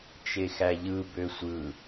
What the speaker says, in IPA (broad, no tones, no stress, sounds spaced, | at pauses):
t͡ʃ e x æ ʎ ɯ b ø sʷ ɯ